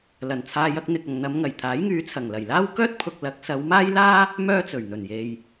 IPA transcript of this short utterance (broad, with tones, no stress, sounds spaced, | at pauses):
l ɐ˨˩ n t͡sʰ aː˧ j ɐ˧ k̚ n̪ ɪ˨ k̚ ɐ˨ ŋ n̪ ɐ˨˧ m ŋ ɐ˨˩ j t̪ʰ aː˨˥ j ŋ yː˨˧ t͡sʰ ɐ˨˩ ŋ l ɐ˨˩ j l aː˥ w k œː˥ t̚ pʰ ʊ˧ k̚ l ɐ˨˥ k̚ s ɐ˨˧ w m aː˥ j l aː˥ | m œː˥ t͡s ɵ˨˩ ɥ n̪ ɵ˨˩ n j e˨ j